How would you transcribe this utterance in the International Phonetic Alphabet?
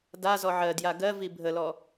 d a z ɔ ʕ ɜ d j a ɡ ɜ v i bʱ ə l ɔ

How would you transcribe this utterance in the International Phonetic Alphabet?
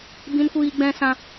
b ĩ˦ n kʷ iː˦ ɡ͡b ɛ̃˦ s ã˦

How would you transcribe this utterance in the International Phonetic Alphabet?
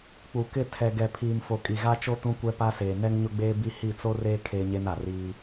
k͡p u˨ k ɪ˦˨ tʰ ɛ˨ ɡ ɛ˨ pʰ iː˨ m f o˨ kʼ i˨ ɣ a˦ t͡ʃ o˦ t ũ˦ kʷ ɛ˦ p a˦ s eː˨ n ɛ˦ ŋ ɲ ʊ˦ ɡ͡b eː˦ b i˦ h i˦˨ t͡s o˦ r eː˦ kʰ eː˦ ɲ e˦ n a˨ r iː˦

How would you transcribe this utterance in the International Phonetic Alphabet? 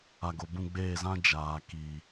a˨ ɡ o˨ b ũ˦˨ ɡ͡b eː˦˨ z ã˦ d͡ʒ aː˨ k iː˨

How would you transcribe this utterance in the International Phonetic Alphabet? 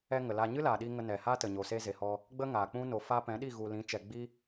ɛ˧ ŋ ə˨ l a˧ ɲ ɨ˦ l aː˨ ɗ i˧ ŋ ə˧ n ɛ˨ h a˦ t ə˨ ɲ o˨ s eː˧ z e˨ h ɔ˧ | ɡ͡b ə˦ ŋ aː˨ k͡p ũ˦ n o˨ f a˧ p ɛ̃˨˦ ɗ i˦˨ ɣ u˨ l ĩ˨˦ t͡ʃ ɛ˨ ɡ͡b i˦

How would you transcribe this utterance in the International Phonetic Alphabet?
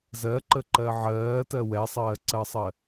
z ɜ ǃ ə ǃ ɜ ʕ ɜː t ɜ w ɛ sˤ ɜː ǀ ɜ sˤ ɜ

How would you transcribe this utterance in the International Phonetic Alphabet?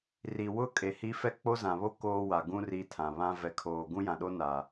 r i˨ w ʊ˦ kʼ e˨ h i˦ f ɛ˦ k͡p o˦ z ã˨ β o˦ k oː˦ w a˨ ɡ ũ˦ r i˨ tʰ ã˨ β ã˦ v ɛ˨ kʰ oː˨ ɡ ũ˦ j ã˨ ɗ o˦ n a˨

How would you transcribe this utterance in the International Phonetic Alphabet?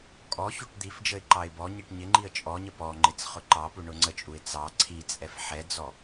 kʼ ɔ ç u ʈ d̪ i f d͡ʒ ə ɪ̯ ǃ ɑ ɪ̯ b ɔ ɲ i ʈ ɲ ɪ ŋ͡ǃ i ə̯ t͡ʃʼ ɔ ɲ ə p ɔ ŋ͡ǃ ɪ t͡s χ ʊ ǃ ɑ p u ɳ ʊ ŋ͡ǀ ə t͡ʃʼ u ɪ̯ t͡s ɑ ǀʰ i t͡sʼ ɛ f ħ ɛ d͡z ɔ

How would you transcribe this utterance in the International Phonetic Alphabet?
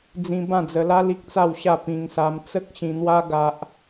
d͡z ĩ˧ b ã˥˧ d͡z ə˧ l a˦ l i˦ k̚ t͡s a˥˧ w ɕ a˥˧ p ĩ˧ ŋ s a˧ m t͡s ə˦ k̚ ɕ ĩ˧ n̪ w a˦ ɡ a˦ ʔ

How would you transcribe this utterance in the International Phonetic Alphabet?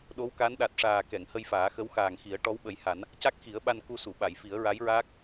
ɗ o˧˥ w k a˧˥ n ɗ a˨˩ t̚ ʂ aː˨˩ k ɛ˨˩˨ ŋ h ə˧ j f aː˨˩˦ x ə˧˥ w x aː˨˩ ŋ x i˨˩˦ ə̯ ʈ ɔ˧˥ w ɓ ə˨˩˦ j h a˨˩˦ n | c a˦˥ k̚ x i˨˩˦ ə̯ ɓ a˧ n k u˧ s u˨˩˨ ɓ a˨˩˨ j f i˨˩˦ ə̯ ɹ a˧˥ j ɹ aː˦˥ k̚

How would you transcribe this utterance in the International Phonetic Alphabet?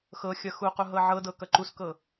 x ɤ xʲ ʌ x u q u ɦ ɤ ʕ ɤ d ɤ k ʌ ǃ u s k ɤ

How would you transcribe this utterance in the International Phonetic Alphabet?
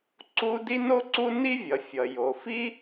ǀ u˥ d i˥ n o˥ ǀ u˥ n i˥ vʲ ʌ˩ fʲ ʌ˩ j o˩ f i˥

